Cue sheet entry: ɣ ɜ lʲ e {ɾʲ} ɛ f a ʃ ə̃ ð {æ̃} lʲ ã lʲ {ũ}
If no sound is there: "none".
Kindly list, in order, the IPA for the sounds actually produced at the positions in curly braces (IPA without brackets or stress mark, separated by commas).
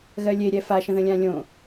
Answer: ɾʲ, ə̃, õ